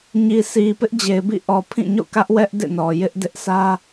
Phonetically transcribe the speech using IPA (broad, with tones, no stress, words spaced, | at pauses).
ɲi˨si˨ pɪ˦ʔd͡ʑe˨ɪ̯bḭ˦˨ʔɔ˨ pʰĩ˦˨ɲo̰˦˨kä˦ʔwɛ˦ʔ dḛ˦˨nɔ˨ jɪ˦ʔdɪ˦ʔsʰä˦